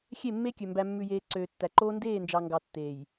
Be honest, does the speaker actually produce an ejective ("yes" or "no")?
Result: no